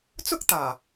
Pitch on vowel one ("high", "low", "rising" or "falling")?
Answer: high